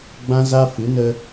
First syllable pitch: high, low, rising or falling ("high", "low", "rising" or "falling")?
high